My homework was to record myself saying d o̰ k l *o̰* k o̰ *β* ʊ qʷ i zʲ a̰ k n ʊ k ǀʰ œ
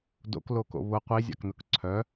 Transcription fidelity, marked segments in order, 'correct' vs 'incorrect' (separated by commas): incorrect, correct